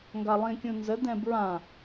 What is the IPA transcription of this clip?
ŋ ɡ a lˠ ĩ kʲ ũ n z ə d ɛ̃ b ɹ ã

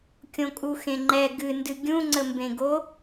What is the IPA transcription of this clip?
kʲ õ kʼ u x ẽ ŋ͡ǃ ɛ ɡ ɨ n d ɨ ɡʲ ũ ŋ͡ǀ ə m b ẽ ɡ o

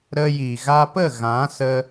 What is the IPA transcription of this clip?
ɾ ə˧ j i˨ ɣ a˧ p ə˦˨ ɣ ã˨˦ s ə˦

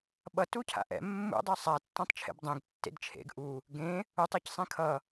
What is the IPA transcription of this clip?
ɓ ʌ t u cʰ a̰ ʔ ɛ̰ mː ṵ dˤ e sˤ a tː ã tˤ t͡ʃʰ ḛ b dˤ ẽ ɡ tː ḛ d t͡ʃʰ ḛ ɡ ʔ u | ɡ ẽ | u tˤ ɛ c sˤ ẽ kʰ ʌ

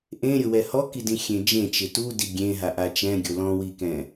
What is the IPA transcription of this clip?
ʔ ẽ ɾʲ ʊ w ɛ h ɔ k i d ĩ xʲ ẽ d͡ʒ ẽ t͡ʃ ɪ t u d i ɡʲ ẽ ɦ a ʔ a t͡ʃ ɛ̃ ɡʲ o l ɔ̃ w i k ɛ̃

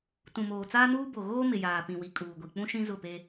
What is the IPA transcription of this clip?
t ũ˨ m oː˨ t͡s aː˦ n uː˦ b o˨ ɣ oː˦ m ɪ˨ j aː˨ p ĩ˨ w i˨ kʼ uː˨ ɡʷ i˨ k͡p ũ˦ ʃ ĩ˦ z ʊ˦˨ p e˦

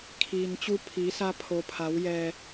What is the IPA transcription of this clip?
kʰ iː˩ n t͡ɕ u˧ pʰ iː˩˧ s a˧ pʰ o˩ pʰ a˩˧ w j ɛː˩

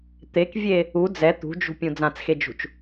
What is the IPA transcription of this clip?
t̪ e k vʲ e | u d͡z ɛ t̪ ṳ d͡ʒ ṳ pʲ ũ d͡z ã t͡s x e d͡ʒ ṳ t͡ʃ

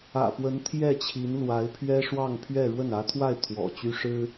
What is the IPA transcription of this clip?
ä̰˨˩ p w ə˧˥ n t̪ʰ j ɛ˥˩ t͡ɕʰ i˧˥ n l w a˧˥ ɪ̯ pʰ ɥ ɛ˥ ʂ w ɑ˥˧ ŋ pʰ ɥ ɛ˥˧ ɻ w ə˥˩ n ä˧˥ t̪ʰ w a˥˩ ɪ̯ t̪ʰ w ɔ̰˨˩ t͡ɕ y˥ ʂ ɻ̩˥

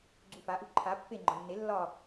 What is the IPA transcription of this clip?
ɡ͡ǀ u f a ʔ u ǃʰ a pː e ŋ͡ǃ ɒ nː e lː ɒ

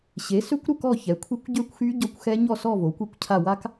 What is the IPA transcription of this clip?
ɕ e˩˥ s ø˦˥ kʷ ɾ u˥˧ k ɔ˥˧ ç ɛ˩˥ kʷʰ e˦˥ kʷ ɟ ø˥˧ kʷ x y˦˥ ɟ ɔ˦˥ kʷ x ɛ˦˥ ɲ ɔ˥˧ s ɔ˥˧ v o˩˥ kʷ i˦˥ kʷ cʰ a˥˧ w a˦˥ k

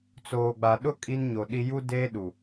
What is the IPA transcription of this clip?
t͡s oː˨ ɡ͡b a˨ ɗ ʊ˦ kʼ i˦ n ɲ o˨ ɗ i˦ j u˦ d eː˦ ɗ u˨

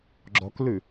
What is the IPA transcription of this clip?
ɡ͡ǁ ɔ k l ʉ

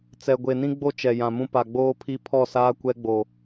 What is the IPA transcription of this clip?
t͡s ɛ˨ ɡʷ e˨ n ĩ˦ ɡ͡b o˦ t͡ʃ ɛ˨ j ã˨ m ũ˦ p a˨ ɡ͡b oː˦ pʰ i˦ pʰ ɔ˦˨ s aː˦ kʷ ɛ˦ ɡ͡b o˨

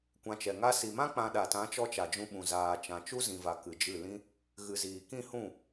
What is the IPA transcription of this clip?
kʷ ã˧ t͡ʃ ɛ˨ ŋ a˧ s i˨ m ã˦ k͡p ã˧ ɗ a˨ t ã˨˦ t͡ʃ ɔ˧ t͡ʃ a˨ d͡ʒ ũ˧ ɓ ũ˨ z aː˨ t͡ʃ ã˨ t͡ʃ u˦ z ĩ˨ v a˨ k ɨ˨ d͡ʒ ɨ˦˨ l ĩ˦ | ɣ ɨ˨ z iː˨ k ĩ˦˨ h ũ˦˨

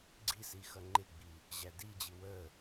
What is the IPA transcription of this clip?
ɡ͡ǀ i s i x ʌ ŋ͡ǃ ɪ ɡ͡b i | ʑ æ d i d͡ʑ i w ə

